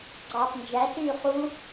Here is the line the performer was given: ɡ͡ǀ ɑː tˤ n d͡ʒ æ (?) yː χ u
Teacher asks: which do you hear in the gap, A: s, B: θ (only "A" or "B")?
A